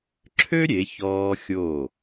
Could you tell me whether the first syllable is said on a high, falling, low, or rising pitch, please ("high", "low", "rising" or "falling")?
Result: high